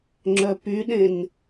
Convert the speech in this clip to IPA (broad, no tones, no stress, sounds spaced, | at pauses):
ŋ͡ǁ œ p y ɗ ẽ n